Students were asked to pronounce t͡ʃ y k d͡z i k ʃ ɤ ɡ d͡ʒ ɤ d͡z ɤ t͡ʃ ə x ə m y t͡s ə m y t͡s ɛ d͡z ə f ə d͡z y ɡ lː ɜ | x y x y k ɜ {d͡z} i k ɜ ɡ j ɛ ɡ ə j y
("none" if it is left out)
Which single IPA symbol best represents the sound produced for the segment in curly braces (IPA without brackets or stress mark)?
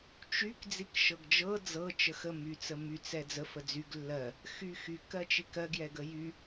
t͡ʃ